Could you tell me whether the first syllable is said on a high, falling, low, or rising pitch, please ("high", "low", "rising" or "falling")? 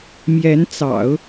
rising